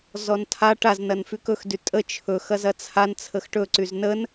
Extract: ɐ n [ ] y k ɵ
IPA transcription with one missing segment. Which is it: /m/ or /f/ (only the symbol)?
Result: f